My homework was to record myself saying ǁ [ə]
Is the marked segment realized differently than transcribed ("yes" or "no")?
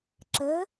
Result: no